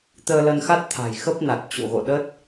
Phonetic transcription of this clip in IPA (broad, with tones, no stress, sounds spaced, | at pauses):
t̪ əː˧ l ə˧ n x a˦˥ t̚ t̪ʰ a̤˨˩ j x ə˦˥ p̚ n a˨˩ t̚ t͡ɕ o̰˧˨ ɣ o̰˧˨ ɗ ə˦˥ t̚